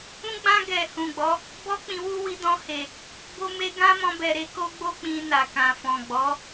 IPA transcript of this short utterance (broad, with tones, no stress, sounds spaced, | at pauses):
ũ˦ ɡ͡b ã˦ ɡ ɛ˧ h ũ˨ ɡ͡b ɔ˨˦ | b ɔ˦ k͡p ĩ˧ w u˦ w i˧ d ɔ̃˧ h e˨ | b o˧ m e˧ ɡ ã˦ m ɔ̃˧ b ɛ˨ ɾ e˧ k o˦ ɡ͡b o˦ k͡p ĩ˧ n a˨ k ã˨ f ɔ̃˨ ɡ͡b ɔ˨˦